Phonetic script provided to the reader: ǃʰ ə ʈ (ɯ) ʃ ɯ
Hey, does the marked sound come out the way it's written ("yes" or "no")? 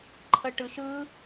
yes